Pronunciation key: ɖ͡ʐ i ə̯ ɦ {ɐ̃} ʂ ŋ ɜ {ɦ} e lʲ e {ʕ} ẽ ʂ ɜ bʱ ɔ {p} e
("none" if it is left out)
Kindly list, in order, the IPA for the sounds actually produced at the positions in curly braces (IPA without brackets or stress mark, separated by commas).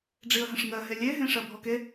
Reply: ə̃, ɦ, ɦ, k